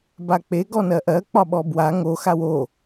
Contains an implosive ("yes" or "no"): yes